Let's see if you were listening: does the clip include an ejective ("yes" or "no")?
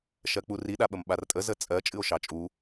yes